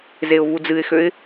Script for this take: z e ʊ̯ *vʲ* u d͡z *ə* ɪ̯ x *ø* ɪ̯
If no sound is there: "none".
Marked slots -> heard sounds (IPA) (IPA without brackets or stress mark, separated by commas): v, ɨ, ø